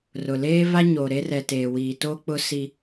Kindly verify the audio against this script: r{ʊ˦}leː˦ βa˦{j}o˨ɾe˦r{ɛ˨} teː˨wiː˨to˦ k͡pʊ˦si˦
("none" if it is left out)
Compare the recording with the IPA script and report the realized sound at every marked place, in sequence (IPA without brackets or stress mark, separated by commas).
ʊ˨, ɲ, ɛ˨